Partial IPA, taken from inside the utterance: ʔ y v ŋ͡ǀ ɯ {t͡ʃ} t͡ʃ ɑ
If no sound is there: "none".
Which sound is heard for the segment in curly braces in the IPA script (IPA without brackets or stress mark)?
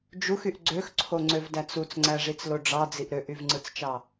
t͡s